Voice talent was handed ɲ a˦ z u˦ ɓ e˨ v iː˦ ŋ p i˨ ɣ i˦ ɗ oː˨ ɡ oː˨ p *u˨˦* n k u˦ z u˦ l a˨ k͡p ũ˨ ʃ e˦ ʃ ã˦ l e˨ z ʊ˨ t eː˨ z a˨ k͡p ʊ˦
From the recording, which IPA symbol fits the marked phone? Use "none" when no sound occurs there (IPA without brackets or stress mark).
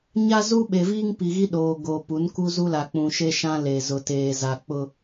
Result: u˨˦